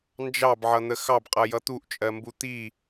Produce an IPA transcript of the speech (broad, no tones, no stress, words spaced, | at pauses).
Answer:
nd͡ʒɑbʕʌn̪ə xɑbqʼʌjʌ t̪uʔt͡ʃʼɜmbu t̪i